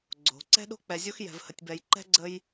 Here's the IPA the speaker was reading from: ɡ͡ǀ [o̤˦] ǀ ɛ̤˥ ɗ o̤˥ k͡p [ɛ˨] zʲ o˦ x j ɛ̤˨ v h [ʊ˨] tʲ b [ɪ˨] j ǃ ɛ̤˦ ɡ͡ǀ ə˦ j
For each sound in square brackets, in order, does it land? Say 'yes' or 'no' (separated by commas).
no, yes, no, no